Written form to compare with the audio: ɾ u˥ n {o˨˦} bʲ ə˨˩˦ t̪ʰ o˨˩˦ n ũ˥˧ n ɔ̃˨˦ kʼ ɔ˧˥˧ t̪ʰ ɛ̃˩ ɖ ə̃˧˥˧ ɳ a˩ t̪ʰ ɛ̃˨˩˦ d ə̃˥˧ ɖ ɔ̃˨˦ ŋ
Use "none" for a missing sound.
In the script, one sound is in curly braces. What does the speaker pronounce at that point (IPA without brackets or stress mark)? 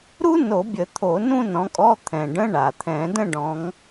o˨˩˦